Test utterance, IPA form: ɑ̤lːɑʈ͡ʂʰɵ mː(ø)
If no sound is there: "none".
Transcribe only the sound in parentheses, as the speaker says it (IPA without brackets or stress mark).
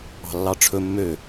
ø